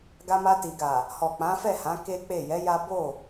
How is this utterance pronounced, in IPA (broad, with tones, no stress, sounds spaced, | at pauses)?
ɡ a˧ m a˧ t i˨ ɡ a˨ | h ɔ˨ k͡p ã˨˦ f ɛ˦˨ h ã˨˦ k e˦ k͡p e˦˨ j ɛ˨˦ j a˦ b o˦˨